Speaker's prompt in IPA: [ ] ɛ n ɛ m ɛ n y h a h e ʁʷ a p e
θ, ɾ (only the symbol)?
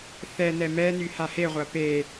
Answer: θ